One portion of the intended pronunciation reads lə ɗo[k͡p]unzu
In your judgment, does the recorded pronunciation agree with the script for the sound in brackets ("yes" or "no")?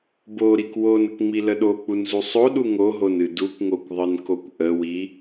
yes